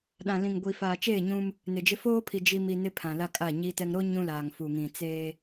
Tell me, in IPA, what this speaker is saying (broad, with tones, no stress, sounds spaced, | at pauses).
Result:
ɗ ã˨ l ĩ˨ ŋ ɡʷ i˨ f aː˨ t͡ʃ eː˦˨ ɲ ũ˦ m | n ɪ˨ d͡ʒ ɪ˦ f oː˦ pʰ i˨ d͡ʒ i˨ m i˨ n ɪ˦ pʰ ã˨ l a˦ kʼ a˦˨ ɲ i˦ t ɛ˦ ŋ ɾ o˦ ɲ ũ˦ l aː˨ ŋ f u˨ ŋ ĩ˨ t͡s eː˦